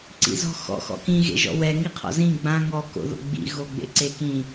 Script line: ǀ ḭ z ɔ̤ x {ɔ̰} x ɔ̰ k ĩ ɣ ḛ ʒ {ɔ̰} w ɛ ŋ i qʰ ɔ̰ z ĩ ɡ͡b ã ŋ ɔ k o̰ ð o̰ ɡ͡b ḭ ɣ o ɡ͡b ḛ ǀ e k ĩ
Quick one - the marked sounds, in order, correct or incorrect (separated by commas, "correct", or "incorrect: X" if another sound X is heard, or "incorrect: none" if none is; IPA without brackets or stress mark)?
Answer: correct, correct